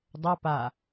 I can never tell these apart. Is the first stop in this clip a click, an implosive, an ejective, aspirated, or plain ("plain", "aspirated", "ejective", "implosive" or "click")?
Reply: plain